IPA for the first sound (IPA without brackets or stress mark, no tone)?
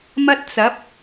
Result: m